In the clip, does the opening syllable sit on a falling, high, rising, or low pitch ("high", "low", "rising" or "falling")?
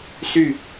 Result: falling